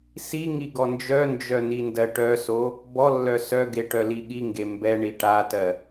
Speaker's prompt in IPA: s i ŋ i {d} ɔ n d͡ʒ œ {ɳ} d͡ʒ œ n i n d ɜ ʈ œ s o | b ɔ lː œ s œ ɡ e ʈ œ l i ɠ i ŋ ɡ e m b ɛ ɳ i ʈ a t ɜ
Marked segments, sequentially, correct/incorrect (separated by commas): incorrect, incorrect